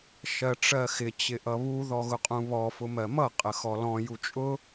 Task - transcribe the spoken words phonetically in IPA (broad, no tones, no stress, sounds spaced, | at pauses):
ʃ ɜ ʈ͡ʂ ɜ x ɪ t͡ɕ ɪ ʔ ʌ β u ð ɔ ɣ ʊ qʼ ũ β ɔ f ʊ m ɜ m ʌ qʼ ə x ɔ l ɔ̃ j u t͡ʃʼ ʊ